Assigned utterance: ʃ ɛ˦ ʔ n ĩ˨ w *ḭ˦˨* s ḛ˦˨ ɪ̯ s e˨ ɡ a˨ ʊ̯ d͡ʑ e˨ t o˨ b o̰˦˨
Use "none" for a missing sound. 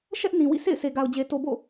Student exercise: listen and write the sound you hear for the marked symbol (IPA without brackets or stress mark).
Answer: ḭ˦˨